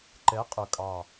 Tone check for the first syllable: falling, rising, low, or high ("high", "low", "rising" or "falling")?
rising